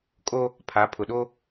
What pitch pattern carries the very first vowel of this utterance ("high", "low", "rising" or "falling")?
high